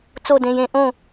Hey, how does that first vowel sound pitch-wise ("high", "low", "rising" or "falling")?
falling